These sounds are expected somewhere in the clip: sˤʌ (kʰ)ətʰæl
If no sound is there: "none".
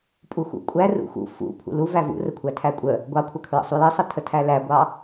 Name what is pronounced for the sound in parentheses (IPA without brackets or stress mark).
tʰ